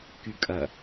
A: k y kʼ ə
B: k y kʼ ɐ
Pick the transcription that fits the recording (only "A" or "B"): B